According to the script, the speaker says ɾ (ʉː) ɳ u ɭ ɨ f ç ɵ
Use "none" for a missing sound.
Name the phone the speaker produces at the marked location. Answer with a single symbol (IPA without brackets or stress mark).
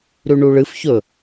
ʉ